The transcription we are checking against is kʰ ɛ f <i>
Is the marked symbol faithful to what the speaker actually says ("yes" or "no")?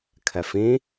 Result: no